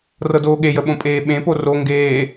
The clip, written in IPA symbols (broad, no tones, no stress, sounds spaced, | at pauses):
r ɤ d oː ɠ e j ə ɓ õ pʼ eː ɓ ẽ p o r o ŋ ɡ eː